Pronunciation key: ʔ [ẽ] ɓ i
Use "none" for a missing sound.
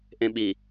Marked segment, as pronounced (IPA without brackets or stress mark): ẽ